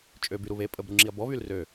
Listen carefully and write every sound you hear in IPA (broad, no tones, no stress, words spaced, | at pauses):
t͡ʃʼøbyɾu βe pʼəbɾuŋ͡ǁiɐ̯ bɔβyl rø